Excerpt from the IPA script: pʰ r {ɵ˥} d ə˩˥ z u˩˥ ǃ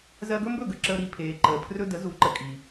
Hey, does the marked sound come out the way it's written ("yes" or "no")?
yes